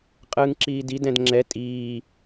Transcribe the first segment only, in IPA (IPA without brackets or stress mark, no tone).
qʼ